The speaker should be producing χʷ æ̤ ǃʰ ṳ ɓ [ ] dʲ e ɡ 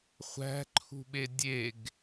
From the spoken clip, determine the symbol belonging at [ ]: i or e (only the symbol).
e